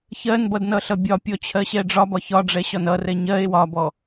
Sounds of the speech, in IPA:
ç ɜ n b ʌ d n ʌ ɬ ʌ bʲ ɒ pʲ ɔ t͡ɕʰ ɜ ɕ ɛ ɖ͡ʐ ɒ b ɒ ç ɒ ɖ͡ʐ ɛ ɕ ɒ n ʌ r ɛ ɲ ɜ e̯ w ɒ b ɔ

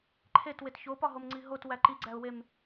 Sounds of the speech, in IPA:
ǃʰ e t w e t ç o p ɒ ɦ o m ŋ͡ǀ i ɦ o t w æ ǃ i ɡ͡ǀ æ ʊ̯ w e m

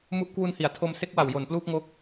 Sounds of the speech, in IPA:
m u˦˥ ʔ k w u˧ n h i˩˦ a̯ tʰ o˧ m s e˦˥ k̚ w a˨˩ w j o˨˩ n p l uː˥˩ p̚ ŋ o˦˥ k̚

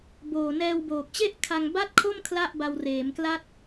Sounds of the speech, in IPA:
b oː˨˩ n ɛː˧ w b oː˨˩ k̚ t͡ɕ e˥˩ ʔ kʰ a˧ ŋ b a˥˩ t̚ kʰ o˥˩ m kʰ l a˥˩ ʔ b a˧ w r eː˩˦ m k l a˦˥ t̚

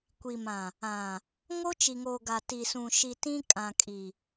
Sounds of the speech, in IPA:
kʷ i˨ m ã˨ | ã˨ | ŋ o˦ t͡ʃ i˨ ŋ oː˨ ɡ a˨ t i˨ s ũ˨ ʃ i˨ t ĩ˦ kʼ ã˨ kʼ i˨

